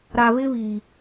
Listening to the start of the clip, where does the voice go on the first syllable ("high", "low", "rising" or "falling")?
low